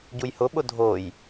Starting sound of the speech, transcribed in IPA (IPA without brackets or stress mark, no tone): ɟ